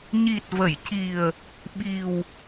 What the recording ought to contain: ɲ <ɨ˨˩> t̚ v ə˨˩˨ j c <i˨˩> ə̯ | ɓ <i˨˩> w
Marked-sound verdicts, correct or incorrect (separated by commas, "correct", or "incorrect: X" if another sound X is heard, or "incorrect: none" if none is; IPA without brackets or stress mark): incorrect: i˨˩, correct, correct